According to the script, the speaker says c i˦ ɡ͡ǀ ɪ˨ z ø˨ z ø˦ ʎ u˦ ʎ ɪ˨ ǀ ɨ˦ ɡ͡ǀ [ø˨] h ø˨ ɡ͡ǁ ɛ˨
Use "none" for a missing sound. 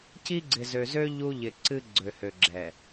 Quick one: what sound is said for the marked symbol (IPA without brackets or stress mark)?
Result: ø˨